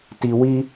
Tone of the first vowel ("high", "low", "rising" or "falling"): high